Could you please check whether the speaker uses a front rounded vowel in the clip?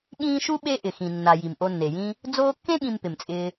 no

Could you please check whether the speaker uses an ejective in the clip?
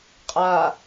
yes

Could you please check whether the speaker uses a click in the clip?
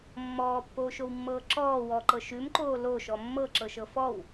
yes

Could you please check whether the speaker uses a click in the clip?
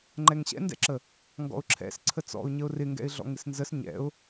yes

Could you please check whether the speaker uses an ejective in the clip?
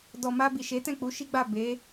no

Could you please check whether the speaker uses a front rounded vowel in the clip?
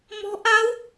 no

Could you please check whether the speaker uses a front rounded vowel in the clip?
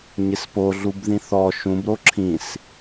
no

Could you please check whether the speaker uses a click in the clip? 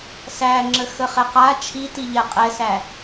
yes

